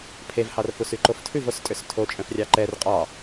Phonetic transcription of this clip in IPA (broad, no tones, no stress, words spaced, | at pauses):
pʰevhɑrfus yǃoftʰʉv ostʼøstʰo t͡ʃʼœ̃frʲɑǃɛr qʼɑ